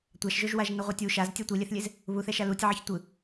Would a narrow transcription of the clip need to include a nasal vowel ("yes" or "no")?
no